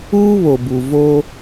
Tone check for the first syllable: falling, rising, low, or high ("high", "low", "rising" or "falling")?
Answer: high